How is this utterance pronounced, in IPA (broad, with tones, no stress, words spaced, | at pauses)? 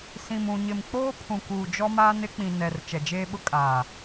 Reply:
sĩ˨mũ˨ ɲɪ˨mk͡poː˦pʰũ˨ kuː˨d͡ʒɔ˦maː˦n ɪ˦k͡pĩ˨nɛ˨r t͡ʃɛ˨d͡ʒeː˦ɓʊ˦kʼaː˨